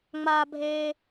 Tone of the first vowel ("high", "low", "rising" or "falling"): low